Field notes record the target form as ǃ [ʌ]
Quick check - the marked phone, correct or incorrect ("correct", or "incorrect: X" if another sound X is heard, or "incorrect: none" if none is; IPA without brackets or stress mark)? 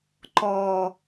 incorrect: ɔ